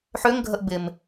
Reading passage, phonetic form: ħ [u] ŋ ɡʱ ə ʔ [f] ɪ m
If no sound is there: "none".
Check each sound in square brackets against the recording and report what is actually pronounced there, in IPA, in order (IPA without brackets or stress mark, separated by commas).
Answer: ø, b